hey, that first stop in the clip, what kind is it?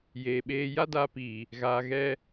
implosive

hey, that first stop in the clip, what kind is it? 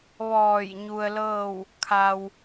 aspirated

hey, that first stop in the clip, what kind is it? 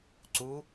click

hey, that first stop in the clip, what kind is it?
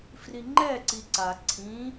click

